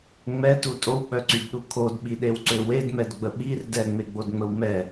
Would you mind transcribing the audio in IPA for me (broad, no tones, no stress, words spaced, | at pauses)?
ŋ͡mɛtu tʼowk͡pœǀydɗu kʰodɓiɗewǀø wedmɛdɡ͡bə ɓir dɛŋ͡meɡ͡bodŋ͡məw mɛ